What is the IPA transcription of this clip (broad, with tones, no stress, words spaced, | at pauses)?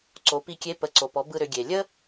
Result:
ǀo˩˧pi˧kʲe˧˥ pə˩˧ǀo˩pɔ˩˧ bɯ˧ɾʏ˩˧ɡʲe˩ lʲə˥